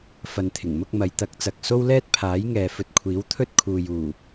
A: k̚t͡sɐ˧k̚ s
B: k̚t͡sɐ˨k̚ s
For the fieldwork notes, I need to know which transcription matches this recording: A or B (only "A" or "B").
B